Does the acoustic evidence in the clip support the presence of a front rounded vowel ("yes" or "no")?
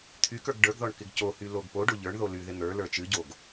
yes